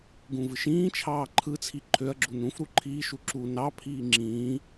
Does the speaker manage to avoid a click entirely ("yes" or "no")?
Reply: no